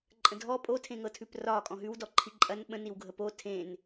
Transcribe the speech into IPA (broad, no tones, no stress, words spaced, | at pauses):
ǃʼə̃dʱɔ pʼotʰẽŋɤtʰʉp rɒ kʼɔ̃ɦʉwdɔ ǃʰiǃʼɐn ɓə̃niwɡʱə po tʰẽn